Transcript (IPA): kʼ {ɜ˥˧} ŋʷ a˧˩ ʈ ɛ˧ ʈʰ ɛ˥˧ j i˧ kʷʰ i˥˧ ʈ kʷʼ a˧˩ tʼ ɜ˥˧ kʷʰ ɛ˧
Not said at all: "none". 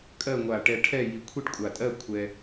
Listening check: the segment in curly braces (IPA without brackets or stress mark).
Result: ɜ˥˧